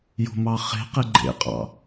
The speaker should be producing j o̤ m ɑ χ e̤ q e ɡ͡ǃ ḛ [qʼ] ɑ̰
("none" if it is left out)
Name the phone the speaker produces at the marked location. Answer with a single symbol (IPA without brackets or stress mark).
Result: qʼ